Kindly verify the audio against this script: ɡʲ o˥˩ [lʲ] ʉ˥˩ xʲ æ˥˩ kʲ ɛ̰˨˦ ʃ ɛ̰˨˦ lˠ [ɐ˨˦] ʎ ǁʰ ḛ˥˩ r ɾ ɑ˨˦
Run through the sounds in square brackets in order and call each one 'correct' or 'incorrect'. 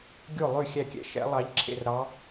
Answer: incorrect: lˠ, incorrect: ɑ˨˦

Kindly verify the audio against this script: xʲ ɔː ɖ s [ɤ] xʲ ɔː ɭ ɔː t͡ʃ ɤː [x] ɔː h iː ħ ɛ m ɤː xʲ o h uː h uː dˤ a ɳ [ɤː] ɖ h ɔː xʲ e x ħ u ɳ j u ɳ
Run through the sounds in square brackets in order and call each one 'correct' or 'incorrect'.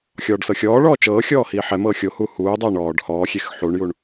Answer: correct, incorrect: xʲ, incorrect: ɔː

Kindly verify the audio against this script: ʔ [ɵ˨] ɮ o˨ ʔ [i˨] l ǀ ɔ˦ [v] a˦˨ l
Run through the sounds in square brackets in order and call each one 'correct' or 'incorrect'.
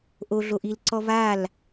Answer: incorrect: o˨, correct, correct

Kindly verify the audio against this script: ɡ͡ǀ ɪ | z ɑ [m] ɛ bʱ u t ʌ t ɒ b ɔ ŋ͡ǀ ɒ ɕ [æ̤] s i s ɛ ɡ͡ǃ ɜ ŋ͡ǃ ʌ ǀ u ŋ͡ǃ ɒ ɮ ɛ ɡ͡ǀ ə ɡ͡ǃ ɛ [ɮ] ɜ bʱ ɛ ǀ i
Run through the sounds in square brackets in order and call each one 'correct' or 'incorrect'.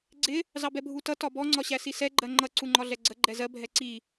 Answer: incorrect: b, incorrect: æ, incorrect: z

